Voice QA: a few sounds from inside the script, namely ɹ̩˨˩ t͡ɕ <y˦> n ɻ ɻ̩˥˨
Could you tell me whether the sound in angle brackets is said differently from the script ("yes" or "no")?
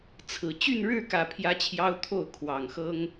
yes